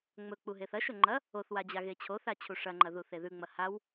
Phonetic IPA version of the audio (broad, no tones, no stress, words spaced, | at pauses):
ŋ͡mɵk͡pu ɦeθɐʃɵ ŋ͡ǃɐ | oθwa d͡ʑaɣet͡ɕʰoθa t͡ɕʰuʂɐŋ͡ǃɐ ðuθeðʉŋ͡mɐ haw